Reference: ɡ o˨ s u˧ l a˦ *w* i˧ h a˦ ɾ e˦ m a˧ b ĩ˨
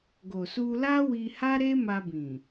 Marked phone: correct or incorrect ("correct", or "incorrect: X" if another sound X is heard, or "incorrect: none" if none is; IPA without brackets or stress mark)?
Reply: correct